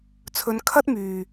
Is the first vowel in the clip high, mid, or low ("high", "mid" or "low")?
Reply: mid